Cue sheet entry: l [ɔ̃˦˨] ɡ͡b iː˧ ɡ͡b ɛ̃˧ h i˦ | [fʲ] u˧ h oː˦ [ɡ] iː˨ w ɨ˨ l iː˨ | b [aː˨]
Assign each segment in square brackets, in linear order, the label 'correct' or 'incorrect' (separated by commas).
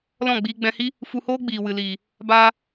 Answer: correct, incorrect, incorrect, incorrect